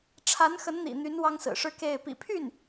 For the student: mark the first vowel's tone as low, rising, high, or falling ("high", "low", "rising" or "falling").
rising